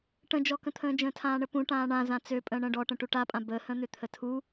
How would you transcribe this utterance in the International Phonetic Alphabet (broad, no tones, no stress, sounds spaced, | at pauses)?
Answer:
ʈ ə̃ d͡ʒ ɔ k ə̃ t̪ʰ ə̃ː d͡ʒ ə̃ː tʰ ãː ɳ ə p ũ ʈ ãː ɳ ã z ã t͡s ø pʼ ə̃ː ɳ ə̃ː ɖ ɔ ʈ ə̃ ʈ u ʈ a pʼ ã b ə h ə̃ n̪ ʏ t̪ʰ ə tʰ u